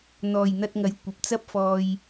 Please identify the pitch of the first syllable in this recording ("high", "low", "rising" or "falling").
low